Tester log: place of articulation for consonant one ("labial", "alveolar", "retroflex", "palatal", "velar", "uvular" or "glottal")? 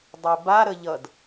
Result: alveolar